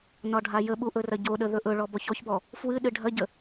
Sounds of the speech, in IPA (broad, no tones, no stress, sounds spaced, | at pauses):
n ɒ ɖʱ a j ə ɓ u ʔ ɵ r ɐ ɟ o ɗ ə ð ɵ ʔ ɵ ɭ ɔ b ɔ ç ɔ ç b ɔ | f w ɨ ɗ ɨ ɖʱ ɐ ɟ ə